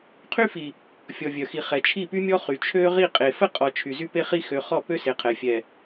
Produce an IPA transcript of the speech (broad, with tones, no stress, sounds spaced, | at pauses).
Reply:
qʰ y˦ f i˨ | fʲ ɔ˨ vʲ œ˨ x i˨ χ ɛ˨ t͡ʃʰ i˦˨ p y˦ mʲ ɔ˦ χ y˨ t͡ʃʰ ø˦ ʁ i˦˨ qʼ e˨ f ə˦ qʼ ɔ˨ t͡ʃʰ y˨ z y˦ p e˦ χ i˦ x ø˨ χ ɔ˦˨ p ø˦ s e˨ qʰ ɛ˨ fʲ ɛ˨